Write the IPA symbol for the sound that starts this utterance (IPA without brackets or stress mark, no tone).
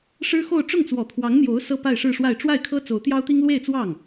ʂ